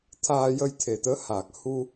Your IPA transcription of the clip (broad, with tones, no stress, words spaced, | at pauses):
t̪ʰaː˧ jə˧j t̪ʰe˨˩t̪əː˧˥haː˨˩k̚ hu˧